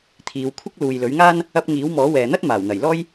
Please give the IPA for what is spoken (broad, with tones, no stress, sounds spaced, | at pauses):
t̪ʰ iː˨˧ w kʷʰ ɪ˥ k̚ l uː˨ j l ɵ˨˥ ɥ ŋ aː˥ n | ɐ˧ p̚ ŋ iː˨˥ w m ɔː˨˥ w ɛː˨ n̪ ɐ˥ t̚ m aː˨˩ w n̪ ɐ˨˩ j l ɔː˥ j